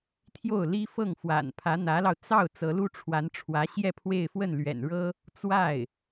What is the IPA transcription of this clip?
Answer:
t̪ʰ j o˥˩ ʊ̯ l i˥ f ɤ˥˩ ŋ f w a̰˨˩ n pʰ ä˧˥ n̪ ä˧˥ l ɑ˧ ʊ̯ t͡s ɑ˥˩ ʊ̯ t͡s ɤ˧˥ l u˥ ʈ͡ʂʰ w a˧˥ n ʈ͡ʂʰ w ä˧˥ ɕ j ɛ˥˧ pʰ w e˥˧ ɪ̯ f w ə˥˩ n l ɥ ɛ̰˨˩ n ɻ ɤ˥ | t͡s w a˥˩ ɪ̯

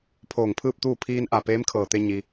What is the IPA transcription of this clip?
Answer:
pʰ oː˧˩ ŋ pʰ ɯː˥˨ p̚ t̪ uː˥˨ pʰ iː˧ n ʔ a˧˩ p eː˧˥ m kʰ ɤː˧˩ t̪ e˧ ɲ i˩

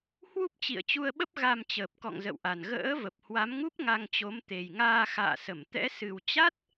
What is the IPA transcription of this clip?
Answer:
h w u˦˥ p̚ t͡ɕ ḭ˧˨ ə̯ t͡ɕ u˧ ə̯ ɓ ə˦˥ p̚ ɣ a˧ m t͡ɕ əː˨˩ p̚ k ɔ̰˧˨ ŋ z ə̰˧˨ w ʔ a˨˩ n ɣ ə̰ː˧˥ v ə˨˩ p̚ h w a˨˦ m ŋ u˦˥ p̚ ŋ a˧ ŋ t͡ɕ o˨˦ m t̪ e˨˩ j ŋ aː˧ x a̰ː˧˨ s ə˧˩ m t̪ ɛ̰˧˥ s ɨ˨˩ w t͡ɕ a˦˥ t̚

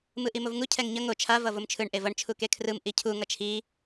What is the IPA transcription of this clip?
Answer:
m ɯ ʔ i m o v ŋ u cʰ ɛ ŋ ɲ ʌ ŋ o t͡ʃʰ a v ʌ v o m t͡ʃʰ ɯ ɳ ʔ e v ʌ ɳ t͡ʃʰ u k e kʰ r ɯ m ʔ i cʰ u ŋ ʌ t͡ʃʰ i

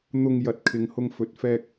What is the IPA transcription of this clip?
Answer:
n̪ ʊ˧ ŋ j ɐ˨ t̚ kʰ ɪ˨ ŋ h ʊ˧ ŋ f ɵ˧ t̚ f ɛː˧ k̚

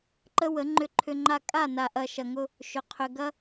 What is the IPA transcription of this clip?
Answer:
ǃ ə˦ w ə˨˦ ŋ͡ǃ ʏ˧ ǃʰ ʏ˧ ŋ͡ǃ a˧ kʼ a˦˨ n a˨ ʔ ɐ˨ ʃ ɐ˨ ŋ ʊ˧ | ʃ ʏ˨ qʰ ʏ˧ ɡ ɐ˦

